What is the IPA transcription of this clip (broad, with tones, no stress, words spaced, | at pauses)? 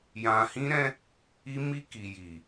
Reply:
jã˨hĩ˧ɾɛ̃˧ | i˧mi˧ki˨ji˨